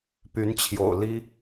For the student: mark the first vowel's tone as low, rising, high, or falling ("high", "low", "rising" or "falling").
rising